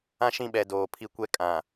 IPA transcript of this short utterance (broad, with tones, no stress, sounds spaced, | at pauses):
ã˦ ʃ ĩ˦˨ ɓ ɛ˨ d oː˨ pʰ i˦ kʷ ɛ˦ kʼ ã˨